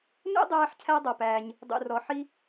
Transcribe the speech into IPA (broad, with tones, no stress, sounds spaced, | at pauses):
n ṵ˥ dˤ æː˥ ħ cʰ æ˥ dˤ ʌ˩ p æː˩ ɲ | dˤ ṵ˩ r ɔ˩ ħ i˥